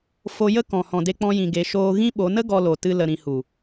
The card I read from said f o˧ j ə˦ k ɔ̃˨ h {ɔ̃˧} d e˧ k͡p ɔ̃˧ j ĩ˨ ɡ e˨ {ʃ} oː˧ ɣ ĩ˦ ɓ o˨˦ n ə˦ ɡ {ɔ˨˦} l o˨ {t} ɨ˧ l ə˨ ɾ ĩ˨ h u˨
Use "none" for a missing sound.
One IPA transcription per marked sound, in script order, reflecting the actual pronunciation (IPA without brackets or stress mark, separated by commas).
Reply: ɔ̃˨, ʃ, ɔ˧, t